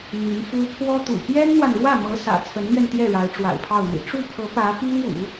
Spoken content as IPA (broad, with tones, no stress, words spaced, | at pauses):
n̪y˧˥nfu˥ pʰwɔ˥t̪ṵ˨˩ pjɛ˥nn̪wa˨nɻwä˥˩mɤ˧˥ sä̰˨˩t͡sʰə˧˥nmɥɛ˧nt̪jɛ˥˩ ɻa˧˥ɪ̯ʈ͡ʂwa̰˨˩ɪ̯pʰɑ˥˩ʊ̯n̪ḭ˨˩ ʈ͡ʂu˥˩pʰɤ˧˥ pä˧˥pi˥ŋṵ˨˩˦